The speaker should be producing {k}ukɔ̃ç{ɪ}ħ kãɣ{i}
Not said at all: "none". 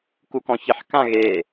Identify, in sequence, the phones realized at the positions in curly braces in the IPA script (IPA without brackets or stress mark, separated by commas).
k, ɪ, e